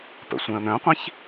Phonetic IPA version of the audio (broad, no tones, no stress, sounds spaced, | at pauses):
p ə̰ sʷ ɛ̃ ə̯ n̪ œ̃ qʷ ĩ ç